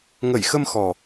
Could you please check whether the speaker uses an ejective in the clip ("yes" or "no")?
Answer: no